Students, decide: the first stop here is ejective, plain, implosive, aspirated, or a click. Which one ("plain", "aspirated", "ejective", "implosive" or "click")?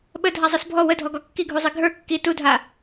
implosive